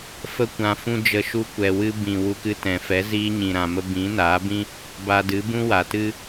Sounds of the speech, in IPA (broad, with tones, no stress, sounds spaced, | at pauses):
f ə˦ kʷ ã˧ f ũ˦ d͡ʒ ə˧ ʃ u˧ kʷ ɛ˨ w ɨ˧ b ĩ˨ w u˧ k ɨ˧ t ɛ̃˨ f ɛ˨˦ z iː˧ ɲ ĩ˨ ɾ ã˨ m ə˧ b ĩ˨˦ n aː˨˦ b ĩ˦ | b a˧ d ɨ˨˦ b ũ˦ w a˨ t ɨ˦